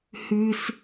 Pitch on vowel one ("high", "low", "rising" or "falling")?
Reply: high